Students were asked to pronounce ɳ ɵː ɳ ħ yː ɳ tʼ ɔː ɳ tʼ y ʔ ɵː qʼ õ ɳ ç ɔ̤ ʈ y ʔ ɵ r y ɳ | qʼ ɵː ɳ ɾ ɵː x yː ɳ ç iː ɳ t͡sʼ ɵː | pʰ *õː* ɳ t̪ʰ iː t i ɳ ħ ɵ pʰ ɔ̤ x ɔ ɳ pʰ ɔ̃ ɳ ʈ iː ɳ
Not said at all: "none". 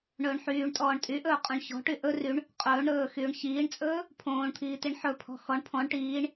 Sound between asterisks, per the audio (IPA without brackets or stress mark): õː